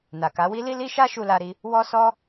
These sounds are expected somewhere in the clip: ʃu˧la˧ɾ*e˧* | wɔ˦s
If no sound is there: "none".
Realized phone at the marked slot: i˧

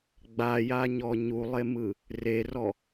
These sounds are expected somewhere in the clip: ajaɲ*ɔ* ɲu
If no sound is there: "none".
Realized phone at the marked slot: ɔ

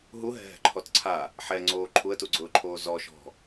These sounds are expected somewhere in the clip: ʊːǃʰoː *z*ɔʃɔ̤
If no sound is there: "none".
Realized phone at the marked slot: z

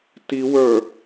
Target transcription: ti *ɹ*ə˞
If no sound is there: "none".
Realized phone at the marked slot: w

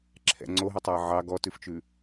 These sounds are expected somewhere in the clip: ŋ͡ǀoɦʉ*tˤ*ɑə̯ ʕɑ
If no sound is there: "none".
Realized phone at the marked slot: tˤ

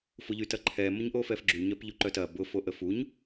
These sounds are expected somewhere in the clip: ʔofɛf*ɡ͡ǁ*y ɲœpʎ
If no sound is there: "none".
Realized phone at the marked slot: ɡ͡ǁ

